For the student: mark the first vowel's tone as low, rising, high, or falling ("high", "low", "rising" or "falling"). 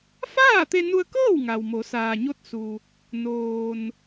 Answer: falling